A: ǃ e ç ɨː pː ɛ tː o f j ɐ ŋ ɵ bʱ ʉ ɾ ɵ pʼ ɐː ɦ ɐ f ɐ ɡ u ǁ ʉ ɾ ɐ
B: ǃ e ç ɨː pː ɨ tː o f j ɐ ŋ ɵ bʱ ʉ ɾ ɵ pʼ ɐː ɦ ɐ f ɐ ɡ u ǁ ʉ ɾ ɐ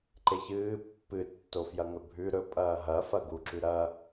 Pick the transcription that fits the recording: B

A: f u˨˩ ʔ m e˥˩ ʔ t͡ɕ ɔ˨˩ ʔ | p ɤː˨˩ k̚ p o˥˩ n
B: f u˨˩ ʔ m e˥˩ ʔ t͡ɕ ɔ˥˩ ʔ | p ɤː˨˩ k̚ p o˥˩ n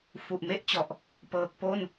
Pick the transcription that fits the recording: A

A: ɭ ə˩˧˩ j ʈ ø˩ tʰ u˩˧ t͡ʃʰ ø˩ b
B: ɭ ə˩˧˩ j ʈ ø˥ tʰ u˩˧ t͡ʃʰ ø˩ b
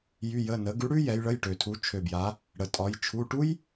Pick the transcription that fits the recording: A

